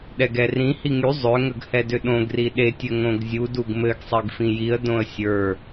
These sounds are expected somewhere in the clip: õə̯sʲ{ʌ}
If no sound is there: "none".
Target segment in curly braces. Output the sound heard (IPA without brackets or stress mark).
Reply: ə˞